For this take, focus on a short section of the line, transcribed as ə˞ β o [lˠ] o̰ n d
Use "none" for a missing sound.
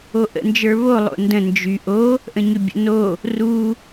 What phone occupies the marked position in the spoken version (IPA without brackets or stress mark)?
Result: lˠ